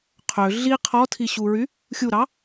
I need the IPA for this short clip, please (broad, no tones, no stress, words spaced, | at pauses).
qʰø ɮi qʰɔtʰiɕuɹy | xʲuɾɑ